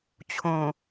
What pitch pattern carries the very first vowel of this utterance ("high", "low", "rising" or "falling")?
low